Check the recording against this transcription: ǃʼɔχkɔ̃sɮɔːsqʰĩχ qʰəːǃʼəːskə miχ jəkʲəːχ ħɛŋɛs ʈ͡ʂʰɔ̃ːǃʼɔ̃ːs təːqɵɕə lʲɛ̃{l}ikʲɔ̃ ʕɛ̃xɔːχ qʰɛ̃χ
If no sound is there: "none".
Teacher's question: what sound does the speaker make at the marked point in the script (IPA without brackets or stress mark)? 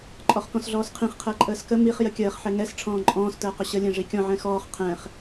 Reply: ʐ